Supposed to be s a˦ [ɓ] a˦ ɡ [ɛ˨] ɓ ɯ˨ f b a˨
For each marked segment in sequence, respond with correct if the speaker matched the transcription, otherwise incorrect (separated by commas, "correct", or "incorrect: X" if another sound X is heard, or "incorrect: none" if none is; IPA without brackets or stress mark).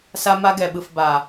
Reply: incorrect: m, correct